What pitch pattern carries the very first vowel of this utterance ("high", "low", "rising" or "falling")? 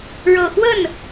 low